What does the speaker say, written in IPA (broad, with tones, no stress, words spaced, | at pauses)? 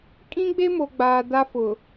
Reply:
kʼĩ˦ɡ͡be˦mo˨ɡ͡baː˨ da˦fʊ˨